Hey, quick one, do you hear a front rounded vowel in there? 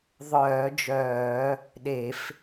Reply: yes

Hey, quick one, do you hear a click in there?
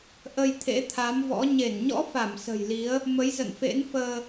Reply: no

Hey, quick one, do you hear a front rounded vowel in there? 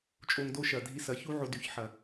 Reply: yes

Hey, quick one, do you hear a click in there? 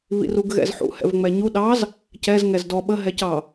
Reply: no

